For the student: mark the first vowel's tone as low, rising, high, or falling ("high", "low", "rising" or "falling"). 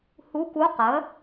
rising